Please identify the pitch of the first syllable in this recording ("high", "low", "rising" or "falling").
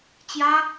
high